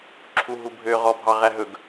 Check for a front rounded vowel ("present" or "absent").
present